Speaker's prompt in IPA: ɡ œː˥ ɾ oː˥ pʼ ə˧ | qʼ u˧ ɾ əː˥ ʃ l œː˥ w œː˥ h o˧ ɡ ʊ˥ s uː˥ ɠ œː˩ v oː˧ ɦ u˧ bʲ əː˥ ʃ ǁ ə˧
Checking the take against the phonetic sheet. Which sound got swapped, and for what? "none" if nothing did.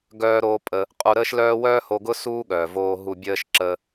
none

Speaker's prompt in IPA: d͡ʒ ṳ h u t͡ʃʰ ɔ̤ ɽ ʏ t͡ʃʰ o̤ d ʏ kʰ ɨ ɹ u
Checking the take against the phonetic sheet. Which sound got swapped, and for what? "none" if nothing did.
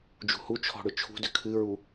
o̤ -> ṳ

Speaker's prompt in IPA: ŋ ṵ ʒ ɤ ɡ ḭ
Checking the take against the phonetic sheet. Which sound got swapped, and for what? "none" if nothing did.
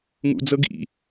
ʒ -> d͡z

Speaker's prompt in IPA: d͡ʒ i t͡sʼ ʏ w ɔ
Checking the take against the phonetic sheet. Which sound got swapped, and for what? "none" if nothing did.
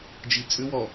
none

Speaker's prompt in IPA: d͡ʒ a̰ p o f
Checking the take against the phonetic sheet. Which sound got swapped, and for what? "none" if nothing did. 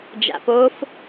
none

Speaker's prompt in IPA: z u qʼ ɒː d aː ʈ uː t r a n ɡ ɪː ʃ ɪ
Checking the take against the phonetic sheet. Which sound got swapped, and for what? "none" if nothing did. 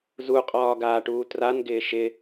d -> ɡ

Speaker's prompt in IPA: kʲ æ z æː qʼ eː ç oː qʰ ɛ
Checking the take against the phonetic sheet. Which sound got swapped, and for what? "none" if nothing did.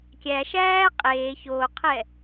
z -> ʃ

